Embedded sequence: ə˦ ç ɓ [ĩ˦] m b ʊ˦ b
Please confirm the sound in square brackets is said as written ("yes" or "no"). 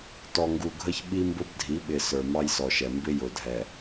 no